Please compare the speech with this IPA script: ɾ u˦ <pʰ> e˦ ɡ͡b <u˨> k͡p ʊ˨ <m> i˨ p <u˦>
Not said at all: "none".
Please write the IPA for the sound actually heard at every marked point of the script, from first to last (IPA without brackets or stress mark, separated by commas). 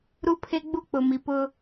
pʰ, u˦, m, ʊ˦